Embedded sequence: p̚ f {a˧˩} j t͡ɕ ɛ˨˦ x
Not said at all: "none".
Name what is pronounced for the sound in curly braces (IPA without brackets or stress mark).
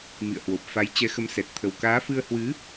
a˨˦